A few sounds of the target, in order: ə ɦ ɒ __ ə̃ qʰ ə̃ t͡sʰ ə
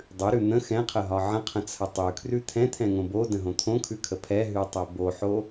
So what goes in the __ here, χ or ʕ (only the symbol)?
ʕ